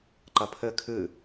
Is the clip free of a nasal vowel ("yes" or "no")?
yes